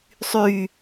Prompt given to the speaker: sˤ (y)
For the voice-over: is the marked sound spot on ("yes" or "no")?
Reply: yes